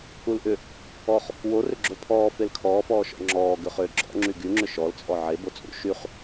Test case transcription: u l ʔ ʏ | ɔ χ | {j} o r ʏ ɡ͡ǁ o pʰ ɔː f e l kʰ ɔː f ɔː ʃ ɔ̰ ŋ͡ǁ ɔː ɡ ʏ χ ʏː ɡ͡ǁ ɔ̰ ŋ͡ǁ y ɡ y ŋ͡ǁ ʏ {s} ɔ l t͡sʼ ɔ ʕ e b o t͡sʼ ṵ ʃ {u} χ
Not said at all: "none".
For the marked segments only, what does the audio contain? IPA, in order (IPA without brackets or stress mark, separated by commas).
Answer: w, ʃ, y